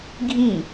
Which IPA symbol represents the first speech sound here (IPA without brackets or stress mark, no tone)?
ɡʱ